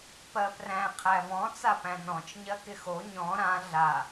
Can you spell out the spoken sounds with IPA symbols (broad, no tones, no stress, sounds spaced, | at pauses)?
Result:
p ɜ p r æ̃ qʰ æ v ɔ̃ t͡s a p æ̃ n ɔ̃ t͡ʃ ɲ ɜ k ɪ x o ɲ ɔ̃ ɾ ã ɮ a